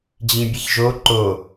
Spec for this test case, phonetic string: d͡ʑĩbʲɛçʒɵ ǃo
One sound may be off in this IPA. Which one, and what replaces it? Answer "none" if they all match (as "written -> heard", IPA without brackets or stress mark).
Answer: ɵ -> o